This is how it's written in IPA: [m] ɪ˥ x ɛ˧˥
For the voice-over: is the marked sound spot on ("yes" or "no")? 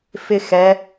no